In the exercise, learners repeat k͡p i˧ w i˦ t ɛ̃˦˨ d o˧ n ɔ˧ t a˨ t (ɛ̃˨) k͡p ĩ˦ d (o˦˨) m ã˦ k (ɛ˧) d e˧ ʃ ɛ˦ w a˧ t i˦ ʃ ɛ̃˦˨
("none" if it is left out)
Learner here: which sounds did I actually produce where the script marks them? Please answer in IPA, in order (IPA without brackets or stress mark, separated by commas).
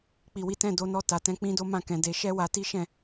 ɛ̃˧, o˦, ɛ̃˧